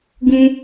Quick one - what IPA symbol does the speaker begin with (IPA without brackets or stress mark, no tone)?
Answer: ɡ